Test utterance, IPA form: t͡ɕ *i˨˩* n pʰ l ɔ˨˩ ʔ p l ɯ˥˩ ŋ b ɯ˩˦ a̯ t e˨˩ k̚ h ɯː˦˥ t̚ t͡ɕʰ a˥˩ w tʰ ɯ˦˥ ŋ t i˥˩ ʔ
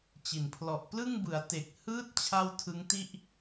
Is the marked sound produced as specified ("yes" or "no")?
yes